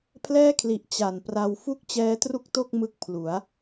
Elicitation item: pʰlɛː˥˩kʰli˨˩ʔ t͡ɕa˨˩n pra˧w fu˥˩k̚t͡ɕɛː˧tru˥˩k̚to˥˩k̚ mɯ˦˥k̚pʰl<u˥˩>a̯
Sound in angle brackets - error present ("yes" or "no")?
yes